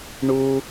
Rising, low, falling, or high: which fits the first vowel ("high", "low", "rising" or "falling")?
low